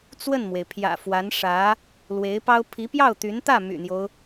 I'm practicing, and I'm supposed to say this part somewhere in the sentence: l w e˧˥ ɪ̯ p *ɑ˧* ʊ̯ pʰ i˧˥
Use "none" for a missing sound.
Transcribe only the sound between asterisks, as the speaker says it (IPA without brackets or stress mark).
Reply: ɑ˥